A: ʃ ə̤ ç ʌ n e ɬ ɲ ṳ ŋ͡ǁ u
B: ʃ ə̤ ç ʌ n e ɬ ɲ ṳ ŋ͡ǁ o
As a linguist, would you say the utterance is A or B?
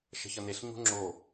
B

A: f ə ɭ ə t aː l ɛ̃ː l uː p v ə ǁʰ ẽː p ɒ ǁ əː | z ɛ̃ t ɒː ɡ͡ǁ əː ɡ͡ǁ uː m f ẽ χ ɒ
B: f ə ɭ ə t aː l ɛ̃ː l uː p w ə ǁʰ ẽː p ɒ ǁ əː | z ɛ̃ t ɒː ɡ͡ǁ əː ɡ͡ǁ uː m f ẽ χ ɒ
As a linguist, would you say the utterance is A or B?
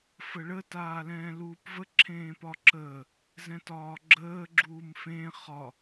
A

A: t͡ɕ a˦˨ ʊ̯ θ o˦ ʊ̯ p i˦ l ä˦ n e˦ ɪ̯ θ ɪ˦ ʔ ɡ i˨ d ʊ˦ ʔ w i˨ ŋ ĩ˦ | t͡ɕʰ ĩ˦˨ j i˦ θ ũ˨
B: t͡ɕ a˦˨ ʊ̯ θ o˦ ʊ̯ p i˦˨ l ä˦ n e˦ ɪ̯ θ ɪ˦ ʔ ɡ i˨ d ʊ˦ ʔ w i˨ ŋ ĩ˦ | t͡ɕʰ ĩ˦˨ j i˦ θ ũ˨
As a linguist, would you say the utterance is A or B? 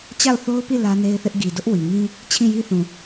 B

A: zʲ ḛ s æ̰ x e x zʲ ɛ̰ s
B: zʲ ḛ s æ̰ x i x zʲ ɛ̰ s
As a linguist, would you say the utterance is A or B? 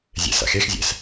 A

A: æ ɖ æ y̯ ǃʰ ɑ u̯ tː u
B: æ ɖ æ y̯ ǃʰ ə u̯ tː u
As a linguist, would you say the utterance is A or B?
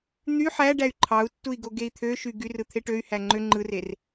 A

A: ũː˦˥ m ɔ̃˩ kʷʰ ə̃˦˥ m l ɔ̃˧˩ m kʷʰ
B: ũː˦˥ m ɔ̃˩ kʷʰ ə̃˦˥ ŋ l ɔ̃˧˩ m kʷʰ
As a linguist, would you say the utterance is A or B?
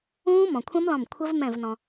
A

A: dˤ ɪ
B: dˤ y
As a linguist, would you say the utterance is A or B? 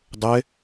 A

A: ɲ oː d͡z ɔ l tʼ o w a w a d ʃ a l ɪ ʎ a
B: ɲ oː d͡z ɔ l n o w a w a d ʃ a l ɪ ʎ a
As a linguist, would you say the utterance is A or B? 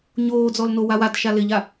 B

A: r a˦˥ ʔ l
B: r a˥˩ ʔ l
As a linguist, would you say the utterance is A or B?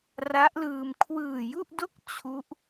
A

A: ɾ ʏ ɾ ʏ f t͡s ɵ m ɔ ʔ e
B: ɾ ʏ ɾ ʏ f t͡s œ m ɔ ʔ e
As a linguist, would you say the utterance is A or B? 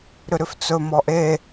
A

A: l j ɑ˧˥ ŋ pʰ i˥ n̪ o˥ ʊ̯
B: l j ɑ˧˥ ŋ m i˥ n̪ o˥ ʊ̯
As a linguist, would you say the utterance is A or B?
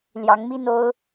B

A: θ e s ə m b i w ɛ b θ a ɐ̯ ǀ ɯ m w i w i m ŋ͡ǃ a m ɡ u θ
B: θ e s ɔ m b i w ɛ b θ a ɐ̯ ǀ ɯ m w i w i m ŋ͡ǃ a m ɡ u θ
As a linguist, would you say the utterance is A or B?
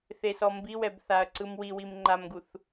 B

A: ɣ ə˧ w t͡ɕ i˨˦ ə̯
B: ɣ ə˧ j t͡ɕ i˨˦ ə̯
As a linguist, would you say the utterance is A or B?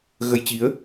B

